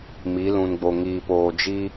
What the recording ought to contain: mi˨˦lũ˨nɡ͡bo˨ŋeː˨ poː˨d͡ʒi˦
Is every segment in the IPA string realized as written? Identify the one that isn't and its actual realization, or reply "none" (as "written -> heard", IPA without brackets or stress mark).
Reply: eː˨ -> iː˨